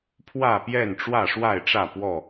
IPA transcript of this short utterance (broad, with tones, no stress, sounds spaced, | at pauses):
pʰ w ä˥˨ p j ɛ˥˨ n ʈ͡ʂ w ä˥˨ ʂ w a˥˨ ɪ̯ ʈ͡ʂ ä˥˨ p w ɔ˥˨